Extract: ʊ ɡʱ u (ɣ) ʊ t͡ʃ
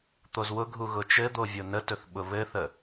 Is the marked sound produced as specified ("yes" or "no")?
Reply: yes